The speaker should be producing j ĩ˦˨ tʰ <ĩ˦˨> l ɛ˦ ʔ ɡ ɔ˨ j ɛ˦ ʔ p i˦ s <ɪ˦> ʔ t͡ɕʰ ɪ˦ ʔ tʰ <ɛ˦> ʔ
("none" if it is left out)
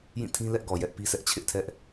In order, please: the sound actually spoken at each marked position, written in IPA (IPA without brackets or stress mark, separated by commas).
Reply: ĩ˦, ɛ˦, ɛ˦